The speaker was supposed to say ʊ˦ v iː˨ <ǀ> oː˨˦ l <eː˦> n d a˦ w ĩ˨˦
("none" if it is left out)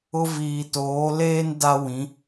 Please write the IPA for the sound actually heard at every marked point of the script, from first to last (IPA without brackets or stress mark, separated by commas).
t, eː˦